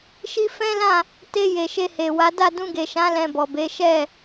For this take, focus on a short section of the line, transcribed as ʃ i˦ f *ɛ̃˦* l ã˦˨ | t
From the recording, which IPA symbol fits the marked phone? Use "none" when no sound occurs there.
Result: ɛ̃˦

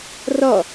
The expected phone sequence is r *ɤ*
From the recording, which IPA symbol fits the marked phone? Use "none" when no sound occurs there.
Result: ɔ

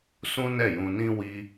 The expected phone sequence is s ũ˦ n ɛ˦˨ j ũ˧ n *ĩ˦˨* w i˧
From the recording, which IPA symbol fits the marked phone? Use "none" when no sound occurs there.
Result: ĩ˦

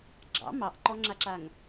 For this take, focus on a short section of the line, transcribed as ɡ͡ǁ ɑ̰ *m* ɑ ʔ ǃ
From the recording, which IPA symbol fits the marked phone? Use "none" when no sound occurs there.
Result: m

